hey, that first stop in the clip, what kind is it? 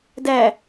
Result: plain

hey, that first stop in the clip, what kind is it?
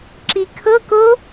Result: click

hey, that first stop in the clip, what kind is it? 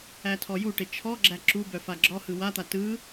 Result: aspirated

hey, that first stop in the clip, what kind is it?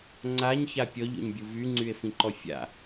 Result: click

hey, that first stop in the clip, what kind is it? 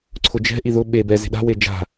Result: click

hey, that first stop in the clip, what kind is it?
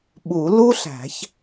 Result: implosive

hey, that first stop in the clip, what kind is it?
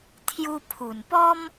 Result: aspirated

